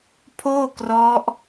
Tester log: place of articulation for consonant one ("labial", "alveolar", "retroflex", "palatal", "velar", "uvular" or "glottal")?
labial